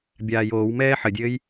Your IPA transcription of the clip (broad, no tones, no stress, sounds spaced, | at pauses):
bʲ aː j oː w m ɛː ħ ə dʲ ɘː j